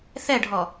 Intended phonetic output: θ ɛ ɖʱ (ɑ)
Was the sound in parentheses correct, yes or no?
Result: no